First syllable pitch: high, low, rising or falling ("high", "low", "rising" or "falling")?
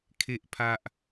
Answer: high